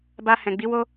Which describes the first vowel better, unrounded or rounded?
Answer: unrounded